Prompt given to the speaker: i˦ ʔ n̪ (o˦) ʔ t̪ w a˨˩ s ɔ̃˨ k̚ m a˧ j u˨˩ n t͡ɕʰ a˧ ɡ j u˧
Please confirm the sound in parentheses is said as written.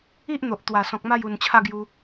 no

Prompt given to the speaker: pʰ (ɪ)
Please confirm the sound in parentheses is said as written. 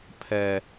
no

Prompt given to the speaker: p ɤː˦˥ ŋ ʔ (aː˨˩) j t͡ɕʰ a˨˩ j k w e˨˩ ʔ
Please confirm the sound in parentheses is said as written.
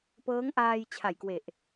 no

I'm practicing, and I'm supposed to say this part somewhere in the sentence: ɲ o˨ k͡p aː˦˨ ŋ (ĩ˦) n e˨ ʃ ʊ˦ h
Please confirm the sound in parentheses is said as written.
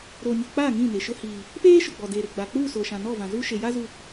no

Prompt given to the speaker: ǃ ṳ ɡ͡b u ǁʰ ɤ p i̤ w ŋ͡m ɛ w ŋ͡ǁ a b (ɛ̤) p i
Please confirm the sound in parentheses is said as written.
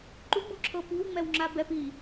no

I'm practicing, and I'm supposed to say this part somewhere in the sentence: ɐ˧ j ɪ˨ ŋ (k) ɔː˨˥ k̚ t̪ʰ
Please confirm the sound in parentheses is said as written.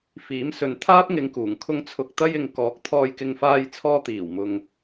yes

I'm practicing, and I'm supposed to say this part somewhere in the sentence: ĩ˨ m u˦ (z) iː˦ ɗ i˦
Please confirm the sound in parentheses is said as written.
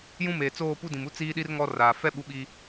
no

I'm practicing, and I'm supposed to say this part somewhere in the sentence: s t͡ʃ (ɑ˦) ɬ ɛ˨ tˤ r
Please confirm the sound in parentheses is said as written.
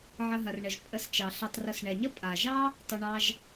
no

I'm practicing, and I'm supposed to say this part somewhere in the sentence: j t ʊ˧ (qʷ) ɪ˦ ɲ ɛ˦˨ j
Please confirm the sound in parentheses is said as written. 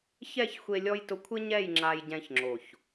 no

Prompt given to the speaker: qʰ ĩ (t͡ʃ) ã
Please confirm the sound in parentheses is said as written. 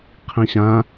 no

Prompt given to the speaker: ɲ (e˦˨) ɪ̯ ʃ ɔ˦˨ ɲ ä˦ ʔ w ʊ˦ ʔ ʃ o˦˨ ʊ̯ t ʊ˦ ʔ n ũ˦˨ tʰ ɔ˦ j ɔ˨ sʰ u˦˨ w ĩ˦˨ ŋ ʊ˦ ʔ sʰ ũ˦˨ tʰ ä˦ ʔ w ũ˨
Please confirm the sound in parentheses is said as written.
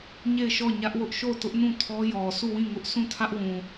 yes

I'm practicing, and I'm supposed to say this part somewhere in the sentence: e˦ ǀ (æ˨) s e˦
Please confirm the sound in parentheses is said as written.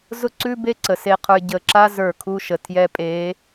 no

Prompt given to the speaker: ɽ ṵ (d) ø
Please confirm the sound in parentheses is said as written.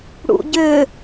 no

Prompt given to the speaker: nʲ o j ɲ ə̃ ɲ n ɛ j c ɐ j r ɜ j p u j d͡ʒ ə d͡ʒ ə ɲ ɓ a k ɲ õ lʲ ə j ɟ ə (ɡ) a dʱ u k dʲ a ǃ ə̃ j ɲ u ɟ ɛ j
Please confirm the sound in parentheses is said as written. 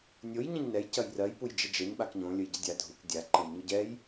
no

